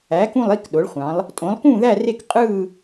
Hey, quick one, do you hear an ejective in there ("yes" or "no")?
yes